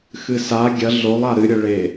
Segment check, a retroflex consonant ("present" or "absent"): present